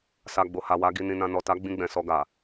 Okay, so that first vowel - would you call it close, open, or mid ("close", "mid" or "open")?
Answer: open